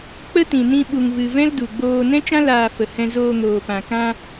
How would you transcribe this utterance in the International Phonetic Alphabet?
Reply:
k͡p ə˦ t ĩ˨ n ĩ˧ ɓ u˨ ŋ v ɨ˨ v ɛ̃˦ l d u˨ ɡ͡b oː˧ n ɛ̃˦ t͡ʃ ã˦ l aː˨ f ə˨ h ɛ̃˧ z oː˧ ŋ oː˨ p ã˨ k ã˧

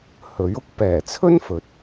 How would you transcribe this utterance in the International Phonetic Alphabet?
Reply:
h ɵ˨˥ ɥ ʊ˥ k̚ p ɛː˨˩ t͡sʰ ɵ˥ n f ɵ˨˥ t̚

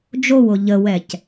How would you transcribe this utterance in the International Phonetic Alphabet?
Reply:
d͡ʒ o w o ʎ ə w ɛ c

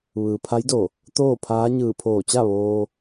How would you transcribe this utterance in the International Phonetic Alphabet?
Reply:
ʋ ɯː˩ pʰ a˧˥ j d o˧˩ | t̪ oː˥˨ pʰ aː˧˥ ɲ ɯː˧˩ pʰ oː˧˩ t͡ɕ a˥˨ ʋ oː˧

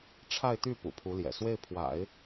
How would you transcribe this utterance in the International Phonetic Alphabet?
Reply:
ʈ͡ʂʰ a˥˧ ɪ̯ t̪ y˥˩ p ṵ˨˩ pʰ u˧˥ l j ɛ̰˨˩ s w e˥˩ ɪ̯ pʰ w a̰˨˩˦ ɪ̯

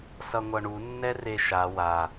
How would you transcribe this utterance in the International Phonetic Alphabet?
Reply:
s ʌ ŋʷ ʌ ɳ u nː ɛ r e ʃ a w a

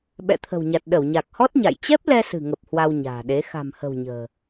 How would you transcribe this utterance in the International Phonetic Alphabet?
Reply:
ɓ ɛ̰˧˨ t̪ʰ ə̤˨˩ w ɲ a˨˩ t̚ ɗ ə˧˩ w ɲ a˨˩ k̚ h ɔ˦˥ t̚ ɲ a̰˧˨ j t͡ɕ ɛ˦˥ p̚ l ɛ˧ s ɨ̤˨˩ ŋ ə˨˩ p̚ h w a˧ w ɲ a̤ː˨˩ ɗ e˨˦ x a̤˨˩ m h ə̤˨˩ w ɲ ə̤ː˨˩

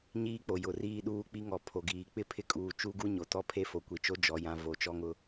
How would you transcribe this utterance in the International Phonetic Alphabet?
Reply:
ɲ iː˦ k͡p o˨ j ʊ˨ r iː˦ ɗ uː˦ k͡p i˦ ŋ ɔ˨ pʰ o˨ ɡ iː˨ k͡p ɪ˦ pʰ ɪ˦ kʼ uː˨ t͡ʃ u˦ ɡ u˦ ɲ o˨ t ɔ˦ pʰ e˦ f o˨ kʷ i˨ t͡ʃ o˦ d͡ʒ ɔ˨ j ã˨ v o˨˦ t͡ʃ ɔ˦ ŋ ʊ˦

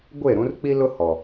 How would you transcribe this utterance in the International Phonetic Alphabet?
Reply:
ɡʷ e˦˨ ɾ ũ˦ r k͡p i˦ l ʊ˦ h ɔ˨

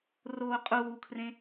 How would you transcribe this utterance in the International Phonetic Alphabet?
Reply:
r oː qʼ uː kʰ r ẽ

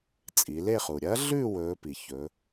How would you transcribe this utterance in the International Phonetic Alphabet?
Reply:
t͡sʼ i˩˧ l e˥˧ χ u˩ ɾʲ ɐ˧˥ ɮ ʉ˥˧ w ɵː˧˥ p i˩ ç ɵ˩˧

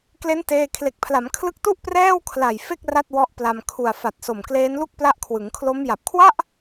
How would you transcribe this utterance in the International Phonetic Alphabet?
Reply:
k l e˦˥ n t eː˥˩ kʰ l e˨˩ k̚ pʰ l a˩˦ m kʰ l ɯ˦˥ k̚ t u˥˩ ʔ p r ɛː˥˩ w kʰ l a˨˩ j f e˥˩ k̚ r a˥˩ t̚ w ɔ˦˥ ʔ p l a˧ m kʰ u˨˩ a̯ f a˨˩ t̚ s o˨˩ m k l eː˦˥ n l u˥˩ k̚ p l a˦˥ ʔ kʰ w ɯ˩˦ ŋ kʰ l o˦˥ m j a˨˩ p̚ kʰ w a˥˩ ʔ

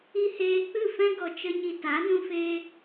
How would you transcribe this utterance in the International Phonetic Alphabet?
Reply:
i˦ h eː˧ k͡p ɨ˦˨ f ɛ̃˦ ɡ ɔ˧ t͡ʃ ə˦ ɲ i˧ t a˨˦ n ũ˧ f eː˧

